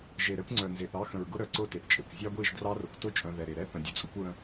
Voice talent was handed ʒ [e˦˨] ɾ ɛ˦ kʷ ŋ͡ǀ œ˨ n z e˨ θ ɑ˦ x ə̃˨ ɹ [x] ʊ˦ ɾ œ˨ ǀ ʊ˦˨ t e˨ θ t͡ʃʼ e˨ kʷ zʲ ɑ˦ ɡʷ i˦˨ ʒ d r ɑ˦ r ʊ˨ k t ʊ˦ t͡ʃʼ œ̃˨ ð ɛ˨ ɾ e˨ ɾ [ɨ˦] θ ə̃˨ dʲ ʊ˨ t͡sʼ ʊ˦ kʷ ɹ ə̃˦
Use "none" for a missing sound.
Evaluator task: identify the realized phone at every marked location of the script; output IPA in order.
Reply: e˨, ɡ, ɛ˦

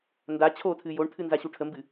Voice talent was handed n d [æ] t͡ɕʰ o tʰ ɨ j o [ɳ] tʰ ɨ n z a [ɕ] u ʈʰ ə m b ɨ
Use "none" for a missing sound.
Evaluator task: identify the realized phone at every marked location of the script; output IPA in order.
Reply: a, ɳ, ɕ

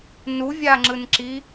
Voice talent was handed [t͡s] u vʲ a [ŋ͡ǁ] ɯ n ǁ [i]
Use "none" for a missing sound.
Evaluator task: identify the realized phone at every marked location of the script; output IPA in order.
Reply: n, ŋ͡ǁ, i

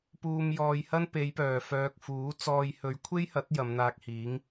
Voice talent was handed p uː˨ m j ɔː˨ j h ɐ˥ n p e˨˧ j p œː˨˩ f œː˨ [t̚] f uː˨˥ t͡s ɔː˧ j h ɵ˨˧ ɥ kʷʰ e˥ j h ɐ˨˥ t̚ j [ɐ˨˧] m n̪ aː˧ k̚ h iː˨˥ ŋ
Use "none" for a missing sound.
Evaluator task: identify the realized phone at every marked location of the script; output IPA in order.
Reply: k̚, ɐ˨˧

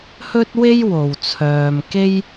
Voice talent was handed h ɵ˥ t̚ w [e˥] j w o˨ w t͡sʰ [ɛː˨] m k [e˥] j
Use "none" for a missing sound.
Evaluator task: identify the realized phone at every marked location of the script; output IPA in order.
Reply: e˥, œː˨, e˥

